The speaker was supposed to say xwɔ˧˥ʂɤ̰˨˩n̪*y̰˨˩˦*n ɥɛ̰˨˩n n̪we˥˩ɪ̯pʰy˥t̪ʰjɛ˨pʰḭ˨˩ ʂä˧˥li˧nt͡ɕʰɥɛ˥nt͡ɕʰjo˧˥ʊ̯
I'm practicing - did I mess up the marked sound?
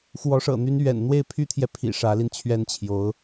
yes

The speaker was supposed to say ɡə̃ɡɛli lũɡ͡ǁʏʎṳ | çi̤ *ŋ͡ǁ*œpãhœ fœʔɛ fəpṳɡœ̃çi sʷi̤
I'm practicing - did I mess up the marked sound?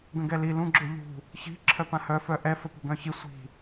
yes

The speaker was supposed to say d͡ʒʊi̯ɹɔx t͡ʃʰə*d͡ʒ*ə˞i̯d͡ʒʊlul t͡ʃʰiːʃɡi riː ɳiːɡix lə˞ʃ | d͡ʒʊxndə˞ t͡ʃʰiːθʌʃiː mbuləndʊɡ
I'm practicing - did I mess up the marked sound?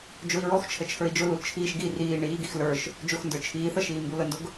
yes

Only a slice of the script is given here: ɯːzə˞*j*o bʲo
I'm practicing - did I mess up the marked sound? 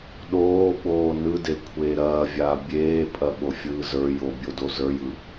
no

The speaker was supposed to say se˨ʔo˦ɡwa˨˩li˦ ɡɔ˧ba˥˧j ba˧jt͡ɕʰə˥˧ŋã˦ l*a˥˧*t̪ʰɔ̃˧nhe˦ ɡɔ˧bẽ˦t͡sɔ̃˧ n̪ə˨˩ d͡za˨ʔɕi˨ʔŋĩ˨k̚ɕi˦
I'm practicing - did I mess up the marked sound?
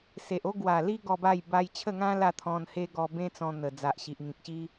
no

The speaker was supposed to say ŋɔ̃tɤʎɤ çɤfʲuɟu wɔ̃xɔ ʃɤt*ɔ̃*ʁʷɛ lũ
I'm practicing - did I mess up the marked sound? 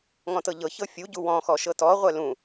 yes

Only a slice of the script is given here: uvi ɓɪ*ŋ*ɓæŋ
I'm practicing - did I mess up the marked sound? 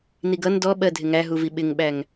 no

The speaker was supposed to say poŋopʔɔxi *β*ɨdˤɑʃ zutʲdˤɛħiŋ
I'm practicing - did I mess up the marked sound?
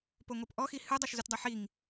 yes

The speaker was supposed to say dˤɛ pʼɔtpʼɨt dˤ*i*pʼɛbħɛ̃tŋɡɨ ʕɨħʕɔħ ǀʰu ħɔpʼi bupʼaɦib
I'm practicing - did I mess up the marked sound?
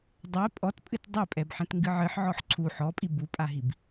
no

